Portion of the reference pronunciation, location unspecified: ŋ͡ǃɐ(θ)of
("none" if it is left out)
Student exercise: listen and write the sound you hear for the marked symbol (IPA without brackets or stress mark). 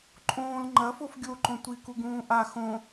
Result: f